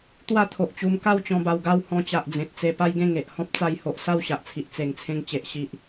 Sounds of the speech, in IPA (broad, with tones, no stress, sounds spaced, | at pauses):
t̪ w a˥˧ t̪ʰ o˨ ʔ t͡ɕ u˧ m k a˥˧ w t͡ɕ ɔ̃˧ b a˧ w ɡ a˥˧ w h ɔ̃˦ t͡ɕ a˨ ʔ d͡z ẽ˨ t̚ t͡s e˧ p a˦ j ɡ ẽ˥˧ ŋ e˨ ʔ h ɔ̃˦ p̚ t͡s a˧ j h o˨ ʔ s a˥˧ w ɕ a˨ ʔ t͡sʰ i˨ ʔ t͡s e˨˩ ŋ t͡sʰ ẽ˧ ŋ t͡ɕ e˨ ʔ ɕ i˨ ʔ